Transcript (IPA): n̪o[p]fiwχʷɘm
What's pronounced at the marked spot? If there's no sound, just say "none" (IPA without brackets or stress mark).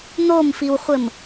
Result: m